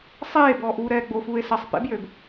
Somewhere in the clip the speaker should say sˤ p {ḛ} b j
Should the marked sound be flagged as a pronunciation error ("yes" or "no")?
no